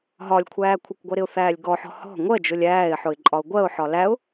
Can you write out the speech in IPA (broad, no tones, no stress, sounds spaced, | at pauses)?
ɦ ɒ lʲ kʷʰ æː kʷʰ ə kʷ ɡʷ ɜ ɾ ɪ ʊ̯ θ æː lʲ ɡ ɔ ħ ɔ̤ h ɔ̤ ŋʷ ɜ d͡ʒ ʊ lʲ æː ɪ̯ ħ ʊ ɪ̯ ǃʼ ɒ ʊ̯ ɡʷ ɜ ʊ̯ ħ ɒ l æ ʊ̯